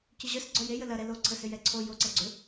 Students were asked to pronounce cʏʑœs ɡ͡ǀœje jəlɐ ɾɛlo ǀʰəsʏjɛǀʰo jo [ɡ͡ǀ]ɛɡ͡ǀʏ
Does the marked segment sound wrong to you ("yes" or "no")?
yes